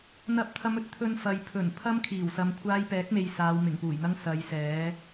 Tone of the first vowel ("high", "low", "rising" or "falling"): rising